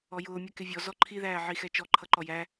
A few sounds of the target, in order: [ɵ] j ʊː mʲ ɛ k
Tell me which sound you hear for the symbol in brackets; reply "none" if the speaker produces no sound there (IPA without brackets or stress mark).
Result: ɔ